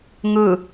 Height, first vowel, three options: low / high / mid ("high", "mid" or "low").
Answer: high